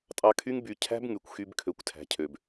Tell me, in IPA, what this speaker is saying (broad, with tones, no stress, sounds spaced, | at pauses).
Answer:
tʼ ɑ˧ kʰ y˦ ŋ b y˧ cʰ æ̤˦ b ŋ y˨ kʷ x y˧ b kʰ ø˨ kʷ tʰ æ̤˨ cʰ ø˨ b